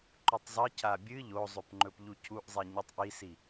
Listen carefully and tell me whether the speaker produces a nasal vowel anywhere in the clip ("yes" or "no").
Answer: no